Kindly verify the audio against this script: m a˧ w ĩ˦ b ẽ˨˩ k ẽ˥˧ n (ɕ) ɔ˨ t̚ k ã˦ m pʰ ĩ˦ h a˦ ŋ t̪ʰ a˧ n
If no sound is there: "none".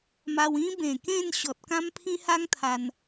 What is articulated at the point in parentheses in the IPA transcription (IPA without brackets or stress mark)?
ɕ